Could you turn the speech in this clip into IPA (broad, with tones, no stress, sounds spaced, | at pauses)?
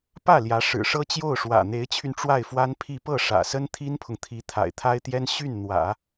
p ä˥˩ l j ä˧˥ ʂ ɻ̩˨˩ ʂ ɤ˥ t͡ɕ j o˥˩ ʊ̯ ʂ w ä̰˨˩ n̪ e˧˥ ɪ̯ t͡ɕʰ y˧ n ʈ͡ʂ w a˥˩ ɪ̯ f w a˥ n pʰ i˥˧ p ɤ˥˩ ʂ ä̰˨˩ s ə˥ n t̪ʰ i˥ n pʰ ʊ˨ ŋ t̪ʰ i˧˥ t̪ʰ a̰˨˩ ɪ̯ t̪ʰ a˥ ɪ̯ t̪ j ɛ˥ n ɕ y˥˩ n n̪ w ä̰˨˩˦